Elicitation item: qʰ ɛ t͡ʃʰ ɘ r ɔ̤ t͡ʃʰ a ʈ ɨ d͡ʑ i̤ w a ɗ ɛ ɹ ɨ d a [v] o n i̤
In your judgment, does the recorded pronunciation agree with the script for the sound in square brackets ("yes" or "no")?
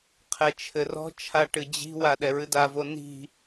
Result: yes